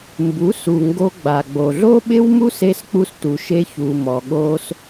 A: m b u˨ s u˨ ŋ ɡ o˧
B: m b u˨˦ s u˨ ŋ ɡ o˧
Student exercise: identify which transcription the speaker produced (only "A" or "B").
B